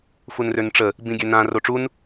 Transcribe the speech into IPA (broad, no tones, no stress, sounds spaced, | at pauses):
f u n r ø n ʈ͡ʂ ə | b ĩ ɡʲ ø n ã r o ʈ͡ʂ u n